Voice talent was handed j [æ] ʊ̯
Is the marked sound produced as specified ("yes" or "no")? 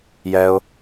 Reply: no